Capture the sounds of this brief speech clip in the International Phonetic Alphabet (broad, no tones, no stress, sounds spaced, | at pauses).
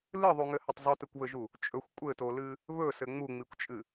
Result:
l ɨ ðˤ u ŋ ɘ h ɘ tˤ zˤ u t ɘ kʷ β ɘ ʒ u | t͡ʃʼ ɵ xʷ kʷʼ ɘ t o l ɨ | β ɵ s ɘ ŋ͡m u ŋ͡m i kʷ t͡ʃʼ ɨ